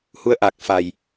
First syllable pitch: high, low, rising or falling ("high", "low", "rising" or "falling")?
rising